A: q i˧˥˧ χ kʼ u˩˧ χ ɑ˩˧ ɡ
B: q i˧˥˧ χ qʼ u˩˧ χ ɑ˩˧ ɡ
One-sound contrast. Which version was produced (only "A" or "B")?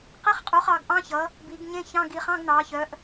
B